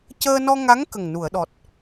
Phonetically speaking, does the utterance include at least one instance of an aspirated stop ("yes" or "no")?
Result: no